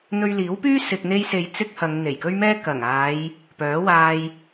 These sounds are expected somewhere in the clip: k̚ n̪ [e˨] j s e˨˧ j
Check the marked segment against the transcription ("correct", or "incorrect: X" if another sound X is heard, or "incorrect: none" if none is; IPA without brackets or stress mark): incorrect: e˧